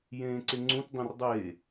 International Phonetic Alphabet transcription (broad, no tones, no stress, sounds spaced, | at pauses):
j ẽː ǀ e ŋ͡ǀ ũ t dˤ ĩ r dˤ eː